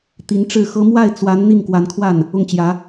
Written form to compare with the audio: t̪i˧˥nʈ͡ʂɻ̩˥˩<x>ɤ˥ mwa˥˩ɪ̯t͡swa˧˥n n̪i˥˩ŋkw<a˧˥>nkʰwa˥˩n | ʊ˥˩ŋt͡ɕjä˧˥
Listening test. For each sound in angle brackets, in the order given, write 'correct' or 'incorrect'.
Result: correct, correct

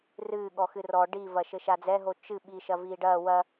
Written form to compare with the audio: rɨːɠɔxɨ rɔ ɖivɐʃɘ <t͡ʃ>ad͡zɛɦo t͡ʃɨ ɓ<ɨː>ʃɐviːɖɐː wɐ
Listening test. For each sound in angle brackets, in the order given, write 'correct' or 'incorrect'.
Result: incorrect: ʃ, incorrect: iː

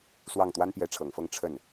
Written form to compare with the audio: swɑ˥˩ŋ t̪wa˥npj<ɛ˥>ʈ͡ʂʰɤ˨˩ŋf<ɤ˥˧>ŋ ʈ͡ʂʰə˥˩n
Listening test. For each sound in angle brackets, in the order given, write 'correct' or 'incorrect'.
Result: incorrect: ɛ˧˥, correct

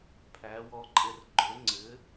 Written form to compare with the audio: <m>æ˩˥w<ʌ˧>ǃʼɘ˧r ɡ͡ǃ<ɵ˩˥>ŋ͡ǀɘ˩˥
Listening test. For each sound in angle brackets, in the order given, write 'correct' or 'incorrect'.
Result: incorrect: pʰ, incorrect: ɔ˧, correct

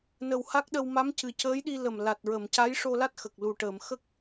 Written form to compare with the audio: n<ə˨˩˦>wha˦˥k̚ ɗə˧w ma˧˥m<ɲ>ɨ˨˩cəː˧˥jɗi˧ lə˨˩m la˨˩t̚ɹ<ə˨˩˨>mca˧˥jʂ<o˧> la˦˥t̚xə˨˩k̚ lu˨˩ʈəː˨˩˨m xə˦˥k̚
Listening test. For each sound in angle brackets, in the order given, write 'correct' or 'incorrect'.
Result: incorrect: ə˨˩, incorrect: c, correct, correct

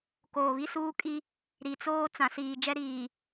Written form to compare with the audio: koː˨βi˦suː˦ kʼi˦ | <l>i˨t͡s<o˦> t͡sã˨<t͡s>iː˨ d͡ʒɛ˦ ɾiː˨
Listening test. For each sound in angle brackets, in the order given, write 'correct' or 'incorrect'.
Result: incorrect: ɾ, incorrect: oː˦, incorrect: s

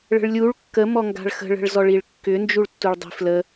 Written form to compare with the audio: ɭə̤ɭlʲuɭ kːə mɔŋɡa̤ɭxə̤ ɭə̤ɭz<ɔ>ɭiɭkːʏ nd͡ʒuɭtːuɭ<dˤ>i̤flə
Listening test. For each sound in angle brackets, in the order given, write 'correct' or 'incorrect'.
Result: correct, correct

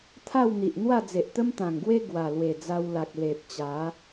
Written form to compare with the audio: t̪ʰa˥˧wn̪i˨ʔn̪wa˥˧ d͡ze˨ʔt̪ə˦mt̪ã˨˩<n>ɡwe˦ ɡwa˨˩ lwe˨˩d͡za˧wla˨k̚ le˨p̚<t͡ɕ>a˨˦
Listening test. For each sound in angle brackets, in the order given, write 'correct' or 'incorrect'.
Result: incorrect: ŋ, correct

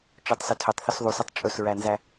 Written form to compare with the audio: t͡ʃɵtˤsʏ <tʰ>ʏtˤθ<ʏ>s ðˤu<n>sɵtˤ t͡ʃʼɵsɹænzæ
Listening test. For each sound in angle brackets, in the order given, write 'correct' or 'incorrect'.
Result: correct, correct, incorrect: none

